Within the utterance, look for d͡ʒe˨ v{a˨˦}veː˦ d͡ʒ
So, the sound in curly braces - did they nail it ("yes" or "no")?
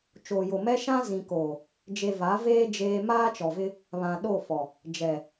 yes